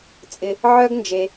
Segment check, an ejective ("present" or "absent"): present